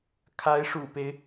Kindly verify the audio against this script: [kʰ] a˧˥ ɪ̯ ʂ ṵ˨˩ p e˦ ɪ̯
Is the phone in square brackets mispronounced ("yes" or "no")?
no